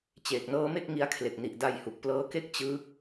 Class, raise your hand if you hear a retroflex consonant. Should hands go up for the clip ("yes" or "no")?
no